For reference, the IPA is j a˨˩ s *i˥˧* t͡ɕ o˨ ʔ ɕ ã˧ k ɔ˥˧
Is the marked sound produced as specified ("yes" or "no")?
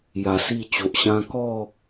yes